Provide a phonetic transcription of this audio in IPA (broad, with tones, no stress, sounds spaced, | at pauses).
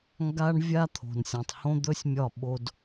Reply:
ŋ ɡ a˦ ɳ vʲ a˦ t̪ʰ o̤˨ n sʲ õ˨ tˤ h õ˦ d̪ ɵ˦ sʲ mʲ ɒ˦˨ ɓ o˦ d